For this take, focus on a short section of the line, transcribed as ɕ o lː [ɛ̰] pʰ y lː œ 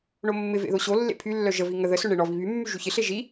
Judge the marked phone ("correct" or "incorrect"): incorrect